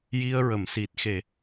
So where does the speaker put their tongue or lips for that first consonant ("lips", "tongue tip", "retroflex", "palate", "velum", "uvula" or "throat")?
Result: palate